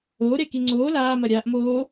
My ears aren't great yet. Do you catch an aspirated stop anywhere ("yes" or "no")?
no